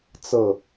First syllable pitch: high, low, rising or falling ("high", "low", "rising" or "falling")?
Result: falling